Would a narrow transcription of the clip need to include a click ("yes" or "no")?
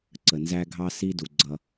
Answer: yes